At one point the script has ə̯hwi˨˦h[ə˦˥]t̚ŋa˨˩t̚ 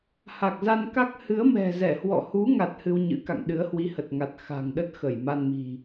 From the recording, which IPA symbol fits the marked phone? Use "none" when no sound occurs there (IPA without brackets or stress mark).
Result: ə˨˩